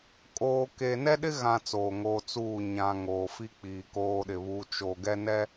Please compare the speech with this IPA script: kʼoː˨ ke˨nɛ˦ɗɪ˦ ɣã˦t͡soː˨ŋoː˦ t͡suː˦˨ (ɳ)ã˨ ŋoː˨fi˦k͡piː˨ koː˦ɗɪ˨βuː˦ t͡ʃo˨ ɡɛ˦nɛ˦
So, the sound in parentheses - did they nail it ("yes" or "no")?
no